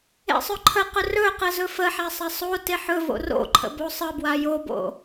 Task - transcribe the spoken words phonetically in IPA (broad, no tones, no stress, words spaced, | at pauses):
ḛsˤɵǃʰəqɵ rɵqə zɵfəħa sˤasˤote ħɵ vo̰ro̰ǃʰə̰ bosˤəbwa jobo̰